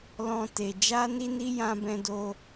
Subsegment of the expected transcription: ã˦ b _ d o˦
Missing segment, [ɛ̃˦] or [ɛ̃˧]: ɛ̃˦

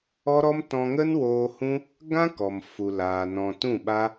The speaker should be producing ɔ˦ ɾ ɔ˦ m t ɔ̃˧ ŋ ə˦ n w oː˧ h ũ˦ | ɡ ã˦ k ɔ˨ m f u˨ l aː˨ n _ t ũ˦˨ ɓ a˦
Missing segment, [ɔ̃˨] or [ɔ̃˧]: ɔ̃˨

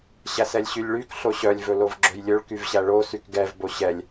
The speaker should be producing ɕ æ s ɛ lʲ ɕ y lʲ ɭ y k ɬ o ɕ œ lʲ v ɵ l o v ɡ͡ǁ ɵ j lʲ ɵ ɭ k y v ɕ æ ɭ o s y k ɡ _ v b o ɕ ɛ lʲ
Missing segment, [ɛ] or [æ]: ɛ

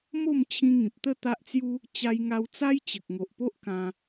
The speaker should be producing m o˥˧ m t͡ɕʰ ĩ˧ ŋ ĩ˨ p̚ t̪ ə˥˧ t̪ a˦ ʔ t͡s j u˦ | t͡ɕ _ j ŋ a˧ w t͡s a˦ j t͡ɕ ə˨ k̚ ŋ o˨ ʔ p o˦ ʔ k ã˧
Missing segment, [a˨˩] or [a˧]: a˧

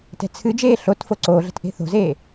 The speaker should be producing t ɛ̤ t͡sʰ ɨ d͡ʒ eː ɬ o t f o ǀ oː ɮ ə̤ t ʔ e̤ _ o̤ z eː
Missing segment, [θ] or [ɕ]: θ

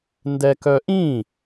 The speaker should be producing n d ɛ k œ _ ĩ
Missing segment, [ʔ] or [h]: ʔ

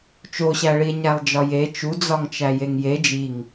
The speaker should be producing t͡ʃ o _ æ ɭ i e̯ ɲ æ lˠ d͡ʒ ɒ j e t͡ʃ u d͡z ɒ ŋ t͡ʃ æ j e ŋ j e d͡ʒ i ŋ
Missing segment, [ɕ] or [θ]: ɕ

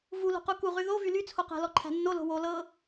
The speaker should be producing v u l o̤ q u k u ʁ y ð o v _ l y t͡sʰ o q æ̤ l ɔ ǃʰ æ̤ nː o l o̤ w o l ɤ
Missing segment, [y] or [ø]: y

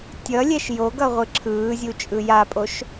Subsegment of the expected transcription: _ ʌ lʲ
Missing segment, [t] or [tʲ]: tʲ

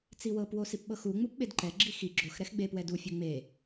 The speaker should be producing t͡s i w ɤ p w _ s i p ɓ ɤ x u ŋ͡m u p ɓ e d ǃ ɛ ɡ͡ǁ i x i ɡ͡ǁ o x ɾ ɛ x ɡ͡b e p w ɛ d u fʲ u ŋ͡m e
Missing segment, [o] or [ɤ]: o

